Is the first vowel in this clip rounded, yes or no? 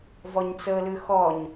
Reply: yes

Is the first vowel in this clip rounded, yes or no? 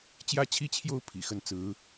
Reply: no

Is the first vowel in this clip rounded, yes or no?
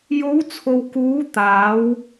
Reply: yes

